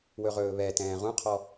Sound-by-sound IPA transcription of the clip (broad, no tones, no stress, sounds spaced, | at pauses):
w ɵ ʁ ɵː β ɛ t ɛ̃ː ʁ ũ qʰ ɔ